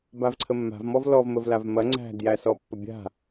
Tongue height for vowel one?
low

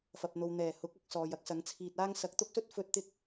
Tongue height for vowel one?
low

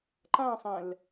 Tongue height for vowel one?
low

